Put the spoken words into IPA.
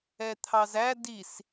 ɛ t̪ʰ ɑ z æ d i s

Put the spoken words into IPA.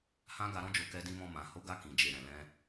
h ã˦ ɡ a˧ ɾ ɔ̃˧ d͡ʒ o˨ k ɛ˧ d ĩ˧ m ɔ̃˧ m ã˨ h o˨˦ ɡ a˧ k ĩ˨ d͡ʒ e˨ ɾ ɛ̃˨ l ɛ̃˧

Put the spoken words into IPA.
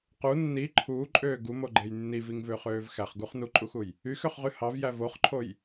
q u nː i ǃʰ uː ǃʼ øː ɡ u m o ɡ͡ǃ e j nː i v i ŋ v ø χ øː v x æ χ ɡ u χ n u ǃʼ u x u j | y x ø χ ʁ y h ɑ v j æ v o χ ǃʰ o j

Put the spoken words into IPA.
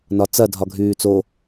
n ɒ t͡s ɐ dʱ ɒ ɡʱ yː t͡s o

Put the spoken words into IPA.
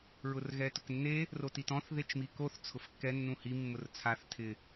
ɹ ʊ r ɣ ɛ t ʊ k nː e | r o t i t ɔ̃ θ ð e t͡ʃ m i k o θ t͡sʰ ʊ f kː ɛ nː ũ h i mː ʊ r t͡sʰ a θ tʰ ɪ

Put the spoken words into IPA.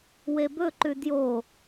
w e b ɵ ǃ ʉ d j o

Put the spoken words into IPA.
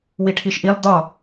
w i ʈʰ i ʃ ʔ i lˠ d̪ ɒ

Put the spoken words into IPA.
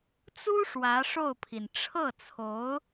t͡s u˥ ʂ w ä˧˥ ʂ o˥˩ ʊ̯ pʰ i˩ n ʈ͡ʂʰ ɤ˥˩ t͡sʰ o˧˥ ʊ̯

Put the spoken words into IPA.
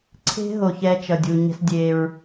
ǀʰ e̤˦ ɦ o˨ ç ɛ˦ t͡ʃ ʌ˨ dʲ u˨ ɲ ɛ̤˦ s dʲ e˦ ɹ

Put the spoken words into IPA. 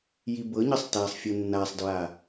j i b ɤ ɲ ɤ sˤ t a sˤ fʲ ɤ nː a sˤ d ɹ a

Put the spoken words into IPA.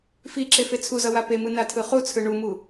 f i ǁ e f e t͡sʰ u z ʌ w a p e m ɯ n a tʰ ɯ χ u t͡sʰ ɯ ɳ u m u

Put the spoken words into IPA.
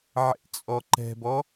ʕ ḛ t͡sʼ ɔ ǃ ɛ̤ b ɔ

